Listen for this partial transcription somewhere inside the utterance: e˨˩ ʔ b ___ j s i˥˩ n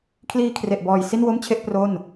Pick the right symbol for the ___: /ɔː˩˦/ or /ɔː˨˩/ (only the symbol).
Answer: ɔː˨˩